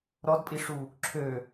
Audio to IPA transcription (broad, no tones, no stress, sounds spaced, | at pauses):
ɾ ɔ d pʼ i ʂ u | ǁʰ ø